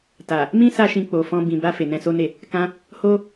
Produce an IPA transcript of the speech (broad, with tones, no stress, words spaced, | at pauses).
ta˨ | mĩ˦sa˧ ʃĩ˧k͡po˨fɔ̃˧ bĩ˨ba˧ fe˨nɛ̃˧so˦ne˦˨ | kã˦ | ho˦